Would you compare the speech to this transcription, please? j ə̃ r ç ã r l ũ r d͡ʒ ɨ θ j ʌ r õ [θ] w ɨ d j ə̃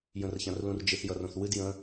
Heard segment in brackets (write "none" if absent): θ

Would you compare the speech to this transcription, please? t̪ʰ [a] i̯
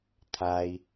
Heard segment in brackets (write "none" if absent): a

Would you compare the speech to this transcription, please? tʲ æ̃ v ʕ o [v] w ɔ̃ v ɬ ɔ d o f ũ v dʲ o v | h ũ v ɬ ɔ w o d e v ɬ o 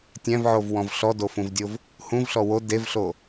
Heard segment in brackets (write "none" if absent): v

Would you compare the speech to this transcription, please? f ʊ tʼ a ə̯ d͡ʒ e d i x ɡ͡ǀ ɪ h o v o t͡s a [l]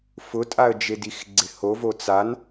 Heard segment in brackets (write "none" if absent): n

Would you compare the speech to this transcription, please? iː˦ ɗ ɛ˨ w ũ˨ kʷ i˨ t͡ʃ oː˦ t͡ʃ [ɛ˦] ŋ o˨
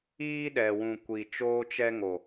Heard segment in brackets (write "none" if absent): ɛ˦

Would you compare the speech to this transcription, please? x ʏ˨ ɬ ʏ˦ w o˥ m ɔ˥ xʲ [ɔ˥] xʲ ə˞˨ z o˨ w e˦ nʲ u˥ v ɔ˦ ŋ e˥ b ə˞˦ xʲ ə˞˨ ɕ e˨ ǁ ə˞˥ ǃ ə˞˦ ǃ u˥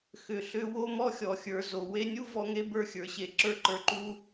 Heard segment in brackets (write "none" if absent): ɔ˨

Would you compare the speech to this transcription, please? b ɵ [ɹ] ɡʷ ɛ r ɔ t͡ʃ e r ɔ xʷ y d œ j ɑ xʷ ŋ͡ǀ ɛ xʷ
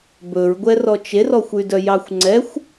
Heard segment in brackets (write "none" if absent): ɹ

